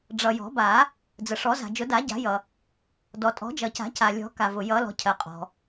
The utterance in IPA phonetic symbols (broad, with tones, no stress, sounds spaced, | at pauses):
ɖ͡ʐ ʌ˩ j ɔ̤˨˩˦ b a˨˩˦ | d͡z ə˩ ʂ ɔ˨˩˦ z a̤˩ d͡ʒ ʊ˨˩˦ d a˨˩˦ ɟ a̤˨˩˦ j ʌ˩ | d ɔ˩ tʼ ɔ̤˨˩˦ d͡ʒ ʌ˩ c a̤˨˩˦ c a˩ lʲ ɔ̤˨˩˦ k a˩ v ʊ˩ j ʌ˨˩˦ l ɔ̤˩ cʰ ɜ˩ qʼ ɔ̤˩